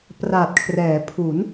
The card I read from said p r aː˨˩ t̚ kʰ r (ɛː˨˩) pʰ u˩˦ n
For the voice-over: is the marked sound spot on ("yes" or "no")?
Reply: no